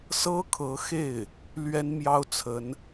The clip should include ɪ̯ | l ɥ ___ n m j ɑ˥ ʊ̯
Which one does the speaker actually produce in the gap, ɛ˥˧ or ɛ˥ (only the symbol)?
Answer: ɛ˥